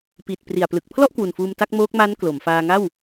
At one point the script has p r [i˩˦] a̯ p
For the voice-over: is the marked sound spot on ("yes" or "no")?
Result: no